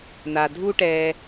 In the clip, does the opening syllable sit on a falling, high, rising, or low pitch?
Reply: low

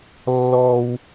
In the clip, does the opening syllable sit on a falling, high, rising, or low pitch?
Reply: high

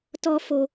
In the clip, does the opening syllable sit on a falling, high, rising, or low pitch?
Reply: high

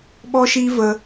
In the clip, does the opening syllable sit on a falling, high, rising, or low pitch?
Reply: high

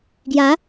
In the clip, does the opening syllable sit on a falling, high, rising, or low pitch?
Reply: rising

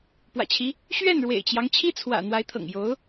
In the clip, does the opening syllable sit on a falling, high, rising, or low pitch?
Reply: low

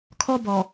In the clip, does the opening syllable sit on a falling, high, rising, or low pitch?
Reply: high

